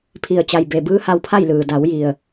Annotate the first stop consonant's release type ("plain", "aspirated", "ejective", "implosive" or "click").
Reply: aspirated